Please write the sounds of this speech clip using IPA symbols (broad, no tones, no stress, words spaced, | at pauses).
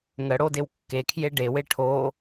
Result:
ŋəɽodew kːekʰje ɖewe ʈʰo